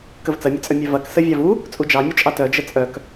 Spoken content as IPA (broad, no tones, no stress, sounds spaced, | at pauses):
k ə v t͡s ɐ mʲ ə t͡sʼ œ mʲ œ v ɐ k s ə vʲ ɑ v u | t͡sʼ u d͡ʒ ɑ mʲ u t͡ʃʼ ɑ t œ d͡ʒ ə t͡sʼ œ k